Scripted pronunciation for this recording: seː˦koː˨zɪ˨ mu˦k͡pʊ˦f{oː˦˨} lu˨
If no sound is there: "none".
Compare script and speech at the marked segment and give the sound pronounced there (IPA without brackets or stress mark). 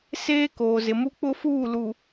uː˦˨